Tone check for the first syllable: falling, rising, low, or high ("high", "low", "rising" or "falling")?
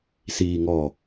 low